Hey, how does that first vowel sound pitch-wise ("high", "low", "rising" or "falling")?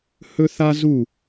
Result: high